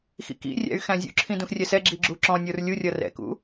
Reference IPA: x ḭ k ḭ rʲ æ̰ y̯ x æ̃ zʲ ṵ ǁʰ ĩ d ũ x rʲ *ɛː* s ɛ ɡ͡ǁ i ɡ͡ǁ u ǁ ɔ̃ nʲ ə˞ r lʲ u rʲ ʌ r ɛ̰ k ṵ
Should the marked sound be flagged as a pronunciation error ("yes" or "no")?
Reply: yes